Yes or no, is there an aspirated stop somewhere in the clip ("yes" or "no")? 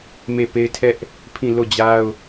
yes